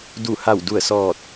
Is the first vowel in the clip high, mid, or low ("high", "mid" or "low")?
high